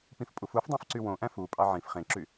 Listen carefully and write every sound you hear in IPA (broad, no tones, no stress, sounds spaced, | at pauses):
p ĩ f pʼ u f u f dˤ æ̃ f ǀ y w õ ʔ æ̃ f u pʼ ɑ ʕ ĩ f χ ẽ ǁ y